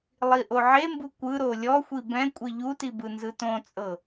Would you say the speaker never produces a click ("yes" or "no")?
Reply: yes